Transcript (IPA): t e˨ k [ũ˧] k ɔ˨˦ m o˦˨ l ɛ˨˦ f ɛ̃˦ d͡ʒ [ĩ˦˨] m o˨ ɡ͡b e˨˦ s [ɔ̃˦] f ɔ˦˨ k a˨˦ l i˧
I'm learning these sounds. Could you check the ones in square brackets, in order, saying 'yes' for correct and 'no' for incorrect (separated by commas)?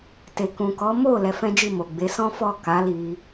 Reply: no, no, yes